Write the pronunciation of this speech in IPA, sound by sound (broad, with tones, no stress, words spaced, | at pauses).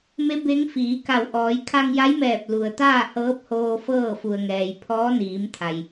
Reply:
me˧˥ be˧˥ŋfiː˩˧ka˧˩w ʔɔː˩˧jkʰa˧ŋja˧˥jmɛː˧˩p̚ lu˩ə̯t̪aː˥˨hɤː˧˥p̚hoː˧ fɤː˥˨fu˩ə̯ŋɛː˩j pʰɔː˧˥niː˩˧mt̪ʰa˩j